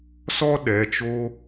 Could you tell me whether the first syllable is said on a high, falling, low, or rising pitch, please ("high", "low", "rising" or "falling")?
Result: high